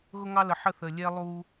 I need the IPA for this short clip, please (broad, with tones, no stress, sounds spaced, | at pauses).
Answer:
ɣ ʊ˦ ŋ ɑ˦ l ə˨ ħ ə˦˨ θ ə˨ lʲ ɛ˦ lˠ u˦